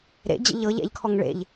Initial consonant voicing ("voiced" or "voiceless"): voiced